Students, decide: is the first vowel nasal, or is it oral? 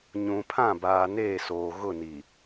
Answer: nasal